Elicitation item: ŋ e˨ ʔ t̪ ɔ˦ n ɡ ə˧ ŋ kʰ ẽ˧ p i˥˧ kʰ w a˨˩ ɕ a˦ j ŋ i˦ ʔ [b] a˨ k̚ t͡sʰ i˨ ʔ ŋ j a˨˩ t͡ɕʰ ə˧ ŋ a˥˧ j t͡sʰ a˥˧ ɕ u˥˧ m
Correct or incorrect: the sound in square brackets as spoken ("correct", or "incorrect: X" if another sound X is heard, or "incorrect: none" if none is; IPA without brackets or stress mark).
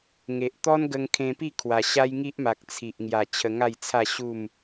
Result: incorrect: m